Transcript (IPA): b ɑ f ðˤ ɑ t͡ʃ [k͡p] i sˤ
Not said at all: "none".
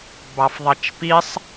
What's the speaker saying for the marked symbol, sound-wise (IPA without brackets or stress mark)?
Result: p